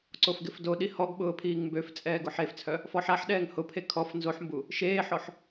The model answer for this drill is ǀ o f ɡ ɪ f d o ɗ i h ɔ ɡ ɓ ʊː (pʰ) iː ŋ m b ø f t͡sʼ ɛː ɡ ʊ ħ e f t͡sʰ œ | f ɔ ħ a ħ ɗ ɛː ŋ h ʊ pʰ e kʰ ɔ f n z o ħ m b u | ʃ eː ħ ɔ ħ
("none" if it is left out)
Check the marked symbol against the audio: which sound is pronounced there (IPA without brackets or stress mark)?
pʰ